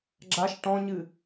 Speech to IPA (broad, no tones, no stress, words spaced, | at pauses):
ɡ͡ǁaʃ ʈɔ̃ɲɨ